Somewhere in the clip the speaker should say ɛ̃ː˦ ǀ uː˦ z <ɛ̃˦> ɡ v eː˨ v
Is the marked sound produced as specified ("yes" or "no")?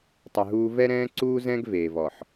yes